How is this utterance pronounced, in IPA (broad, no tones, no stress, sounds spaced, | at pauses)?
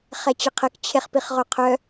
χ ɛ t͡ɕ ə qʰ ə k t͡ɕʰ e χ p i χ ʁ o qʰ œ